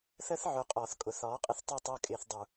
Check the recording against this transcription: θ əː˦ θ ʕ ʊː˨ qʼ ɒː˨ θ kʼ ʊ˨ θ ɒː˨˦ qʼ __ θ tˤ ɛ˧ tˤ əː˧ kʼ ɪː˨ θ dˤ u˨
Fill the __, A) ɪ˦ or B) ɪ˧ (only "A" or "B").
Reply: A